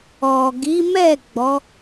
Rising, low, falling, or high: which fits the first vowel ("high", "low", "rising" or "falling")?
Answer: low